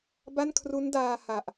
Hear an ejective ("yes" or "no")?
no